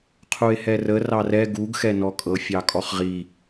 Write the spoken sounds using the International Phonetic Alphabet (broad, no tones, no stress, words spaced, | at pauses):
qʰue̯hɛrə rɑrɛ ɡuɡ xɛnɔkʼɤ fʲɑkʼɔχʁi